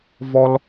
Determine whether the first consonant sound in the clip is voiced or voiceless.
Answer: voiced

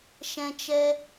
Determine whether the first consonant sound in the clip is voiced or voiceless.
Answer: voiceless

